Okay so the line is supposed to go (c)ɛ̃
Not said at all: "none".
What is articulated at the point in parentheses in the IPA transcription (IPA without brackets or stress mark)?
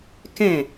k